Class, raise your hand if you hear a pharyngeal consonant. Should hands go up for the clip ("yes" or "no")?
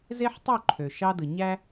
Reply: yes